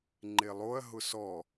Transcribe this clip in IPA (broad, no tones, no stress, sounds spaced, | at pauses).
ŋ͡ǃ e lˠ o ɐ̯ ɦ ʊ s ɔ